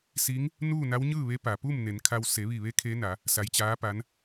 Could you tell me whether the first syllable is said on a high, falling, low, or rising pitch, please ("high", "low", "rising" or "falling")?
rising